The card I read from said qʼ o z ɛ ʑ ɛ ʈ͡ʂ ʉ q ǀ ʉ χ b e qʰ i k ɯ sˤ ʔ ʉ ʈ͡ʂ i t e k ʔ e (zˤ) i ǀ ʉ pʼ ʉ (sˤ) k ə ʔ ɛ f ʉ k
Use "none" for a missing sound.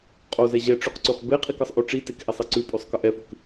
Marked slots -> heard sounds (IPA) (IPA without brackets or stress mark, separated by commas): sˤ, sˤ